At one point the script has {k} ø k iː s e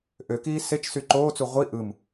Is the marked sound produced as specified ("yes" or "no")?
no